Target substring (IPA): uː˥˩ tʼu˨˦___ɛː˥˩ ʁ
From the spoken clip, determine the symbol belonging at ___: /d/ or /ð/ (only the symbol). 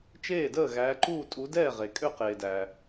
d